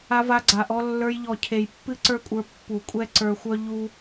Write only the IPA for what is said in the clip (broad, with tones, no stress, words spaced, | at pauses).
a˧va˧ɡ͡ǀa˨ʔɔ˧ lːə˞˧j ʎɔ˨cʰe˨j pːɨ˦ǀə˞˦kʷʼə˞˧ pːu˨kʷʼɛ˦ ǀə˞˧xʷœ˦ ʎu˦